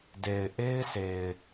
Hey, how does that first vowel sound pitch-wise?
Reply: low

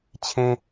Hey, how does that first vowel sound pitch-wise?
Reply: high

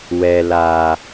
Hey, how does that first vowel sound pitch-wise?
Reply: low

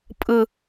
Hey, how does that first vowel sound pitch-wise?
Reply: low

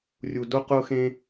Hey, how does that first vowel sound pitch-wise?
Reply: low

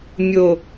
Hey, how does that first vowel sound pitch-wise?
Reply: low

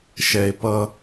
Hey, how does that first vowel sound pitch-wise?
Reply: low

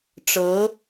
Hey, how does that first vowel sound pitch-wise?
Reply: rising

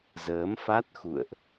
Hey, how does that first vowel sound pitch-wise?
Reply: rising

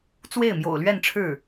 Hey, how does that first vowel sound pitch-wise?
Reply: falling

